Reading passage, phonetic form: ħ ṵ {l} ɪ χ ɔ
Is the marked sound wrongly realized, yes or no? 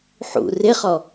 yes